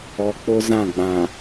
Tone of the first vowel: low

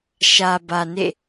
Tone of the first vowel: low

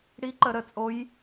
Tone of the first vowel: rising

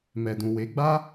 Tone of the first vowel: low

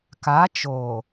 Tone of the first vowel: rising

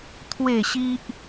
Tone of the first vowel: falling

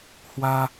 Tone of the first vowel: high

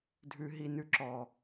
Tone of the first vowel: low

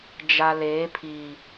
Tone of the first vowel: low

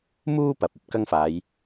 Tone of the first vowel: high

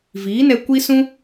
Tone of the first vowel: rising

